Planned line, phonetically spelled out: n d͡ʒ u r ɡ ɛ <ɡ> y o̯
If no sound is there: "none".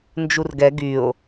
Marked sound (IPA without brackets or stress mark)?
ɡ